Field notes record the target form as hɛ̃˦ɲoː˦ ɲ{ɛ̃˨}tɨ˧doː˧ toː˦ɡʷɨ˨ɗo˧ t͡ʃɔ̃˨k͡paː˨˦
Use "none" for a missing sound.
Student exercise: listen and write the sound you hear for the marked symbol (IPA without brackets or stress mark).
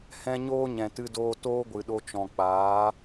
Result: ɛ̃˨